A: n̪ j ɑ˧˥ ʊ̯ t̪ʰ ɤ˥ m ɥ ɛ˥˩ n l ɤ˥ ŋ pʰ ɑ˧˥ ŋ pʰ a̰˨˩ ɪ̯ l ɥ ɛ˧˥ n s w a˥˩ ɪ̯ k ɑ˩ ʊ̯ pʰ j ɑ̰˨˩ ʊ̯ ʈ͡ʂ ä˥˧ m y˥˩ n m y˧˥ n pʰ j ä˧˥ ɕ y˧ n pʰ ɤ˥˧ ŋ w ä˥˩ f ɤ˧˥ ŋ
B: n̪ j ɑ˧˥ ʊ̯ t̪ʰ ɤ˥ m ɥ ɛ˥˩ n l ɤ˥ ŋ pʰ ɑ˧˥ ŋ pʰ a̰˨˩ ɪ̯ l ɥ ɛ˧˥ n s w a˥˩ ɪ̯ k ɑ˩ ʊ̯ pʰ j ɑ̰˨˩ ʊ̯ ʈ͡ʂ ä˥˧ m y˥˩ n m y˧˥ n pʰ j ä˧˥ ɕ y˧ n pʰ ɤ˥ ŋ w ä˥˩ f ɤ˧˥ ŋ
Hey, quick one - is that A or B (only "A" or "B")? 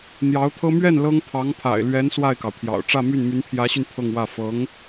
A